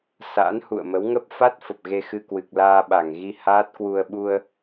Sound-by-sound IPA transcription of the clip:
sa̰ː˧˥nhṵ˧˨ə̯mə˨˦wŋə˦˥p̚ fa˦˥t̚ fə˨˩p̚ɣe˧xɨ˧kwɨ˨˩k̚ laː˧ɓa˧˩ŋɣi˧ haː˦˥t̚kwu˧ə̯ ɓu˧ə̯

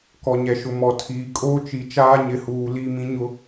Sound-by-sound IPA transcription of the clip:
kɔ˨ɲɛ˨ʃʊ˨ mɔ˨tʰiː˨ kʼoː˦t͡ʃi˨ t͡ʃaː˦ɲɪ˨huː˨ li˦˨ mĩ˦ɲʊ˦

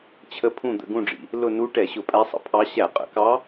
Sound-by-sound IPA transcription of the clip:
t͡ɕʰə˧˥pʰũ˦˨ d̪ə̰˦˨ɡũ˦˨ɖ͡ʐḭ˩ | lʊ˦˨nu˧˥ ʈɛ˧˩˧ɕʊ˧˩˧pʼæ˧˥sˤə̰˦˨ pʰɑ˧˥ ɕæ˧˩˧qʼə̰˧˩˧kɑ˧˥

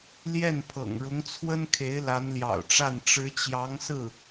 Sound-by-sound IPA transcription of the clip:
ljɛ˥˩npʰɤ̰˨˩ŋɻʊ˧˥ŋt͡sʰwə˥n kʰe˧˥ɪ̯la˧˥nljɑ̰˨˩ʊ̯ʈ͡ʂa˥˩n ʈ͡ʂɻ̩˧˥t͡ɕjɑ˧˥ŋsɹ̩˥˩

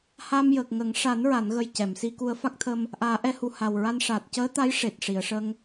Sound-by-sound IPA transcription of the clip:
ha˧mjəː˨˩k̚ŋə˨˩˦ŋ ʂa˨˩˦nɹa˨˩˨nɣə˨˩j cɛ˨˩˨msi˧ku˧ə̯ fa˦˥k̚t̪ʰə˧m | ʔaː˨˩˦ʔɛ˧˥hu˨˩ ha˨˩wɹa˧n ʂaː˨˩t̚cəː˧˥t̪a˧˥j ʂe˨˩t̚ ʂi˨˩˨ə̯ʂə˧ŋ

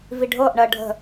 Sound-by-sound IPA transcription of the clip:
viɖʱɤʔ ɳɜɖʱə̤

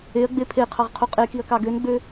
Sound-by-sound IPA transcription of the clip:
eɐ̯ɡ͡be pʰeqʰɑʁqʰu qʼekiɐ̯kɑ ɡønɡ͡bø

